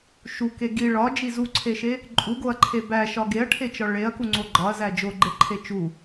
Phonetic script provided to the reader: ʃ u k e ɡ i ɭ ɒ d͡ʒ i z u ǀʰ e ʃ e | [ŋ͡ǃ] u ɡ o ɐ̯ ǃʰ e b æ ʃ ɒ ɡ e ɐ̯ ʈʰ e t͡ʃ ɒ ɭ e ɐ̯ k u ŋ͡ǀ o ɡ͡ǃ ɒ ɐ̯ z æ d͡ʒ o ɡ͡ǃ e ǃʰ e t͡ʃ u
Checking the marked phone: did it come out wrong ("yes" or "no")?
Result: yes